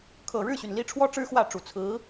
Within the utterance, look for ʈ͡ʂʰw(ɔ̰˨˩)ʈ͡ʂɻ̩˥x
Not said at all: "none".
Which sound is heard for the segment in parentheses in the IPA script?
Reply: ɔ˥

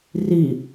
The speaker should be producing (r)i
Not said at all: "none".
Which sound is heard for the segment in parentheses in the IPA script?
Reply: r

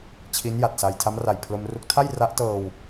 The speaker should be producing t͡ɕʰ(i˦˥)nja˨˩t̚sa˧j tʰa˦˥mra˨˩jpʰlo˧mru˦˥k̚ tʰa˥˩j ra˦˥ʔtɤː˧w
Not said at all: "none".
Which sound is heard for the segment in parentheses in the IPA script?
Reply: i˦˥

